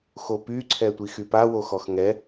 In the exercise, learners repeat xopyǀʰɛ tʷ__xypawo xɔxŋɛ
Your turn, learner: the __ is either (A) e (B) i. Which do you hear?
B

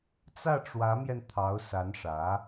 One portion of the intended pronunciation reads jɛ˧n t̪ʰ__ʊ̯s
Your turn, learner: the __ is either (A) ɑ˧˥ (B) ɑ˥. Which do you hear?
A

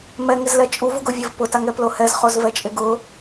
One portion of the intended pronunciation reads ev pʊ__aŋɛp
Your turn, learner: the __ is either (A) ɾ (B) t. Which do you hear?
B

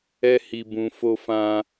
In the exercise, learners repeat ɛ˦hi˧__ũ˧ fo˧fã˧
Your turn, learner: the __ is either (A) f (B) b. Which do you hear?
B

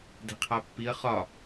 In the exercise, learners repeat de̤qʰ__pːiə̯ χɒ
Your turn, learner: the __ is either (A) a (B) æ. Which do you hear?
A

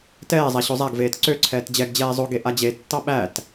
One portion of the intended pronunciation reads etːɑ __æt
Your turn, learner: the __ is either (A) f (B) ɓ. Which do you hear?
B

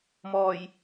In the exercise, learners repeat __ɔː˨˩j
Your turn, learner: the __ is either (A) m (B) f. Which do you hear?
A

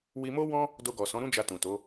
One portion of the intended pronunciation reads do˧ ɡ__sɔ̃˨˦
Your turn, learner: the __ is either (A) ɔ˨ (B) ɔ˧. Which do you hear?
A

